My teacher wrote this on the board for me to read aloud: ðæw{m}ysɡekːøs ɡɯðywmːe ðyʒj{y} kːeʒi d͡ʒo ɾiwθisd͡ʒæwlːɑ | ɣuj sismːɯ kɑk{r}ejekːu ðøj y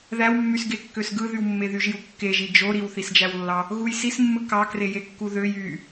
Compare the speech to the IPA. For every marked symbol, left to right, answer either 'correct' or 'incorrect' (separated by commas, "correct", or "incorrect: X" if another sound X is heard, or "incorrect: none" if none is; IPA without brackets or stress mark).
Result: incorrect: mː, incorrect: u, correct